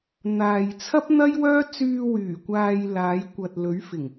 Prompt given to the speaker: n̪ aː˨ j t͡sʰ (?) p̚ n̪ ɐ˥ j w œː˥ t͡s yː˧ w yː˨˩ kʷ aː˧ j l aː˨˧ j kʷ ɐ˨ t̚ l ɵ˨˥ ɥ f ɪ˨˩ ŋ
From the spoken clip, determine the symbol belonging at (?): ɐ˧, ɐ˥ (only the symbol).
ɐ˥